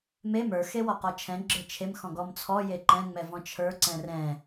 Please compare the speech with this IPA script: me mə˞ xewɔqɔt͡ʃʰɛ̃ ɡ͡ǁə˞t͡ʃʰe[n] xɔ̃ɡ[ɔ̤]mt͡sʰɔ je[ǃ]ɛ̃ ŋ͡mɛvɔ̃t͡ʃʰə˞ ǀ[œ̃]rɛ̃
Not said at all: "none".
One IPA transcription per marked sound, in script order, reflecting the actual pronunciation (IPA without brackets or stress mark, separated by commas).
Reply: m, ɔ, ǃ, ɛ̃